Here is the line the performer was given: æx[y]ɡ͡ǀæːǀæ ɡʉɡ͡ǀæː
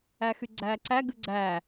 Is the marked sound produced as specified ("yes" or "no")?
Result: yes